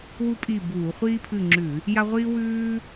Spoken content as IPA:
wu˥pʼi˦˨buː˧˩˧ χʷiː˥pʰɨ˦˨ŋ͡ǁʉ˧˩˧ | ja˥ʁʷiː˥ wʉː˥

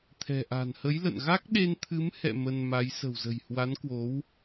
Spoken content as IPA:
t̪ʰɛ̤˨˩ʔa̤˨˩n hə˨˦jlə̰˧˨n ɣa˦˥k̚ɗe˧n t̪ʰɨ˨˦mhɛ̰˧˨ mə˧nma˨˦j sə̤˨˩wzə̤˨˩jhwa˨˦nkwo˨˦w

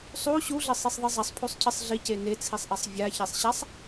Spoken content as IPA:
sˤu ɕuɮɘsˤisˤðˤɨ zˤɐsˤpʰusˤcʰɨsˤ ɮice net͡sʰisˤʔɛsˤ vʲaçɛsˤɕasˤ

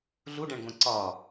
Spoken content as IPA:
ɮuɖæ̃ɳɡʷæ̃ ǀɒ

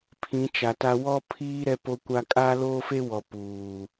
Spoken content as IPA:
pʰĩ˨˦t͡ʃa˨ta˦ wɔ˦pʰiː˦ ɾɛ˦po˦kʷa˦ kʼa˦loː˦fe˦wɔ˨ puː˨

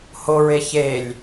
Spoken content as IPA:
hoɹe çelʲ

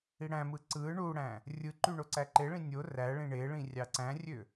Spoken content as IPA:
iɽæ̃mɯ ǀɯ ɳuɽæ̃ | rʲɯǃy ɳoǀæǃeɭĩ nʲo ræɭĩ ɳeɭĩ rʲɑǀæ̃rʲø

